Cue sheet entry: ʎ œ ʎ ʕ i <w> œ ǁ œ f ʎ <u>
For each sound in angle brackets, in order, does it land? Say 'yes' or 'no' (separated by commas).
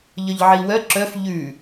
yes, no